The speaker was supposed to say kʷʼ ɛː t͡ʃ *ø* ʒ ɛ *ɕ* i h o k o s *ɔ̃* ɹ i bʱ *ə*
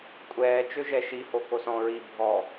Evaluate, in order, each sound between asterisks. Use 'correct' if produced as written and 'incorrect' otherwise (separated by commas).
correct, incorrect, correct, incorrect